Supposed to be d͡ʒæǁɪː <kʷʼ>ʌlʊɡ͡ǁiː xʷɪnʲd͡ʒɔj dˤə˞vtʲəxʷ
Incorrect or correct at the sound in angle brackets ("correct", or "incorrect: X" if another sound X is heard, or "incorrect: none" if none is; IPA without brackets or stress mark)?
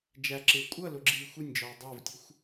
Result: correct